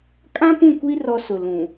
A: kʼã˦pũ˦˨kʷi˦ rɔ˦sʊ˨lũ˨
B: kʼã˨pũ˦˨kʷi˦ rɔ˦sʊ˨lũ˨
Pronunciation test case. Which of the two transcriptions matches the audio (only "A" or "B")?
A